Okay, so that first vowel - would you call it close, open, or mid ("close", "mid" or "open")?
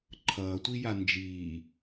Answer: mid